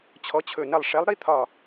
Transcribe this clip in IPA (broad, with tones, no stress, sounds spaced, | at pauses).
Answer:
t͡ɕʰ ɔ˨˥ t͡ɕʰ ɵ˧˩ n ɐ˧˩ lˠ ʂ ɛ˨˥ lˠ ɾ i˧˥˧ t̪ʰ ɒ˧˩